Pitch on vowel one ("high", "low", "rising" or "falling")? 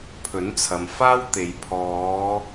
rising